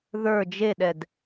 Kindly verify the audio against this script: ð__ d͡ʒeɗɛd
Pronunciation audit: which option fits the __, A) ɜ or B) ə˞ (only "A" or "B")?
B